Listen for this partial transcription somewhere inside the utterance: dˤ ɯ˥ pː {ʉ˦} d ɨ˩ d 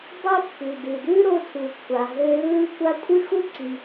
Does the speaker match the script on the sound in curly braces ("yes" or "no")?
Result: no